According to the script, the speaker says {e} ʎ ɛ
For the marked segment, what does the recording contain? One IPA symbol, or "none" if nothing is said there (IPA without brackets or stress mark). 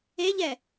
e